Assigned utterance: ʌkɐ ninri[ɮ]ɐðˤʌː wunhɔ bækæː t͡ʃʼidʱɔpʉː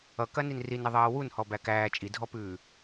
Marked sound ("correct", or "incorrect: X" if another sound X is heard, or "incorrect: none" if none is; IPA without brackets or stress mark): incorrect: n